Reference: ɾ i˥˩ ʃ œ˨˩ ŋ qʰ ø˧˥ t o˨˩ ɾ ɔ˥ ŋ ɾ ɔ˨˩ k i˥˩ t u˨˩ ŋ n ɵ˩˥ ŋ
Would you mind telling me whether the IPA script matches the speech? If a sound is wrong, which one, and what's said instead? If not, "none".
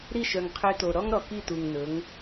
none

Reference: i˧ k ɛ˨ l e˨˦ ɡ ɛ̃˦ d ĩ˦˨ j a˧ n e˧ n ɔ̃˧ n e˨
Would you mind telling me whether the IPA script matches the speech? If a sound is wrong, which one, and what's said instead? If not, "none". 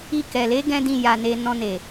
none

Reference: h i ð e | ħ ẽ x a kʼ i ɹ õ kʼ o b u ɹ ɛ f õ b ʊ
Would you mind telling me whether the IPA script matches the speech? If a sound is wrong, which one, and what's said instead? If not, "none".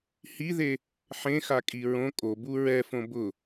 none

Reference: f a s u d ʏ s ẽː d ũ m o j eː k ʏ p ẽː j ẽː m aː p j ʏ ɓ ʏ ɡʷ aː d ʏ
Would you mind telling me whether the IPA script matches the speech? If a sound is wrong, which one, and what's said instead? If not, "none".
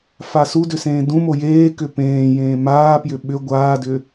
none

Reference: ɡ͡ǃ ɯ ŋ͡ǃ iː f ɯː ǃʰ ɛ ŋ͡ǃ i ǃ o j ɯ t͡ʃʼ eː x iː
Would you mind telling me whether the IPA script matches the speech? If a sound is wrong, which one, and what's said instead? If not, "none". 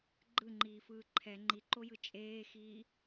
none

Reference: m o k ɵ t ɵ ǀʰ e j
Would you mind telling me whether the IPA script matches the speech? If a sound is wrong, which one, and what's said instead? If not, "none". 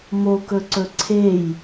t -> ǀ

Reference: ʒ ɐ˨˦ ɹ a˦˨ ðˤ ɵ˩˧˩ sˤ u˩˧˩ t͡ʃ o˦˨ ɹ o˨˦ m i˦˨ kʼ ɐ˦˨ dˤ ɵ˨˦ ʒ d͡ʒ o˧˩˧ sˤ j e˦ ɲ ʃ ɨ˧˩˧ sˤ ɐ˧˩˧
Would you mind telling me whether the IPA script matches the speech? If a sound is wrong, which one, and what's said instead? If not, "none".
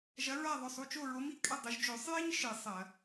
none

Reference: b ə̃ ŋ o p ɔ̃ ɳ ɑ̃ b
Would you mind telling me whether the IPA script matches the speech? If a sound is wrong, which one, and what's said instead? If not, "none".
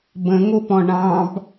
none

